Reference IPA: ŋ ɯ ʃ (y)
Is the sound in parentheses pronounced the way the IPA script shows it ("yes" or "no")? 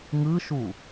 no